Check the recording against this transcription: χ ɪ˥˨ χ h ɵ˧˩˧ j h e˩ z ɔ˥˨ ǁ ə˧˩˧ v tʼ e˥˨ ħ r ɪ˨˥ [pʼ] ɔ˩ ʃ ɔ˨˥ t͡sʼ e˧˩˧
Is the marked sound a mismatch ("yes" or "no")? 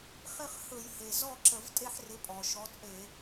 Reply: no